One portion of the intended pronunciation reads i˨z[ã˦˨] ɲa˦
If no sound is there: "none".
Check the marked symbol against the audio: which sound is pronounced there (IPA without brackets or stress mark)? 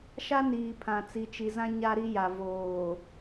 ã˦